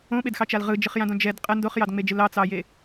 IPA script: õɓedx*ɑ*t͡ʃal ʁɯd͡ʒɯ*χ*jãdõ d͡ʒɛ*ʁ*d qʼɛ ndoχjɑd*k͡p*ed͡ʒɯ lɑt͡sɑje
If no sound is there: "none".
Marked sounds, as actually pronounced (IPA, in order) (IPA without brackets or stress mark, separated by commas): ɑ, χ, none, ŋ͡m